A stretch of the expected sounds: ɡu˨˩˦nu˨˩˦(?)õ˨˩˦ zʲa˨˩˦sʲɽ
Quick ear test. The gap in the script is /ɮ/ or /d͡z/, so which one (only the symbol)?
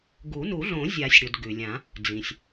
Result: ɮ